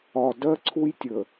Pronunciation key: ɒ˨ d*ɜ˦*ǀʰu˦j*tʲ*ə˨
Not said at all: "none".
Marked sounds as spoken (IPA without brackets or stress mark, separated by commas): ɜ˦, tʲ